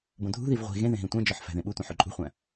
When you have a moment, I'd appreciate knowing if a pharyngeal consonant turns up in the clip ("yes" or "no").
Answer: yes